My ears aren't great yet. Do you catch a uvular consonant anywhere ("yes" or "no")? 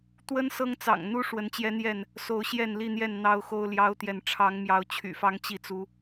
no